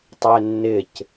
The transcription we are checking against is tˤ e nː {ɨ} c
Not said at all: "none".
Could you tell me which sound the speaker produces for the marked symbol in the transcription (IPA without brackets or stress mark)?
ɪ